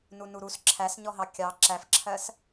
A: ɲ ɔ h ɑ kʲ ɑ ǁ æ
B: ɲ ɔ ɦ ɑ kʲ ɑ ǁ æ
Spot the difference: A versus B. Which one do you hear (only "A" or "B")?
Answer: B